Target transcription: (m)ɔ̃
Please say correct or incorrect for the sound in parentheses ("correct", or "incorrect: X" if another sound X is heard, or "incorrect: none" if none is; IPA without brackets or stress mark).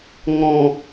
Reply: incorrect: ŋ